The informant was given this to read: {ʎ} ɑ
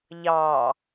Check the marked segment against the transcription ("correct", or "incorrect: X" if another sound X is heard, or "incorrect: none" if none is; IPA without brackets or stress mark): correct